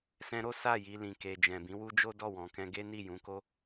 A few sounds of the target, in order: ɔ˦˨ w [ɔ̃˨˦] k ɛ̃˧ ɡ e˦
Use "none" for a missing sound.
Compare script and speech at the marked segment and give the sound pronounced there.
ɔ̃˨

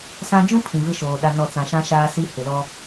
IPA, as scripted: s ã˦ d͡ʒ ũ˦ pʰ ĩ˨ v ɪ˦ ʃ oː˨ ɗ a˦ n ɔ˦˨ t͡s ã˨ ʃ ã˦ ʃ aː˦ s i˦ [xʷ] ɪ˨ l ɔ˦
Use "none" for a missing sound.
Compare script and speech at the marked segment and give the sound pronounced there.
h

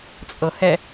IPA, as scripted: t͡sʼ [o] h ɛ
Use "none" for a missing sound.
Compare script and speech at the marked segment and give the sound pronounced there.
ɤ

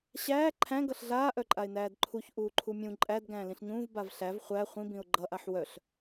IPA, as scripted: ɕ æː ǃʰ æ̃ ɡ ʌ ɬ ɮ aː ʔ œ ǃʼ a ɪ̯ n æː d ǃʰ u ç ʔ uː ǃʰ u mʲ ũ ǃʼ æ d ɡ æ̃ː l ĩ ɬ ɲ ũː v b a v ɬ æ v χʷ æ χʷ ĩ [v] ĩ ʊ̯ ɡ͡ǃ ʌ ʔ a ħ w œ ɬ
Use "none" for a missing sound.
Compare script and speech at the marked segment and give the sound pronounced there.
b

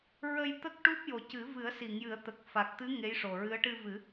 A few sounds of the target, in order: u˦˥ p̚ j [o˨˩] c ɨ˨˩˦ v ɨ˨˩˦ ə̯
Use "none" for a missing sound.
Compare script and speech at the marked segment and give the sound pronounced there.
o˨˩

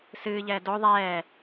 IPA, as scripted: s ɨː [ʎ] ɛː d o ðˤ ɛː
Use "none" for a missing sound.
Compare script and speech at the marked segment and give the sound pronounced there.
ʎ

